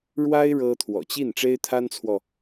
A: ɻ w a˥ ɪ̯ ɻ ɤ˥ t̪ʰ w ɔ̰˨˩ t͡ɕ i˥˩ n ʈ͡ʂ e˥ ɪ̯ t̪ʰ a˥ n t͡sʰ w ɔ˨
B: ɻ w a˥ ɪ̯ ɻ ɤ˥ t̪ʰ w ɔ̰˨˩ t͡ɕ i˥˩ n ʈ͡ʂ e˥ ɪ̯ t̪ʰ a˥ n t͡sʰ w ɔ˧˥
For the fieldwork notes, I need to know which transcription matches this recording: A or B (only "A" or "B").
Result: A